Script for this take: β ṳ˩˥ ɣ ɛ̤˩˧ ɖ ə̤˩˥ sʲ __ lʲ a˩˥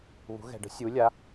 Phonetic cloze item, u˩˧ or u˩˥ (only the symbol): u˩˥